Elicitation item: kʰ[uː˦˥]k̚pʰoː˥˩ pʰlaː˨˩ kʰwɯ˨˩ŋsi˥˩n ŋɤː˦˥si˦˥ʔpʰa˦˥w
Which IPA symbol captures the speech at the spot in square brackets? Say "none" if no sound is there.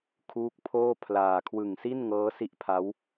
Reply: uː˦˥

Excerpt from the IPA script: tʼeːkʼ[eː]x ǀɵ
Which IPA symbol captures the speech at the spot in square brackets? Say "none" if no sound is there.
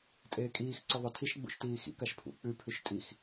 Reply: iː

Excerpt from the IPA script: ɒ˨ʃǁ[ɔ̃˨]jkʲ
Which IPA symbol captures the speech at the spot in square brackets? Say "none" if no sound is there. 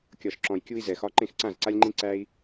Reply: ɔ̃˨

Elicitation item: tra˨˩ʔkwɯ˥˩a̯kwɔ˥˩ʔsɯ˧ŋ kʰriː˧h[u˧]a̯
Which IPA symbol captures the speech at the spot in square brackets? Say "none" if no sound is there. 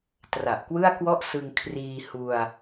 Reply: u˧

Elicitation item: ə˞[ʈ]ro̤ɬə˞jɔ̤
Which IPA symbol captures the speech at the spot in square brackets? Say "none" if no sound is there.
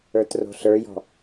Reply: t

